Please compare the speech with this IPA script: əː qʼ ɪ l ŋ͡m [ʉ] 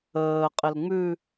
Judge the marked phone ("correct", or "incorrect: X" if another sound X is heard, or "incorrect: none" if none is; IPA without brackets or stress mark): correct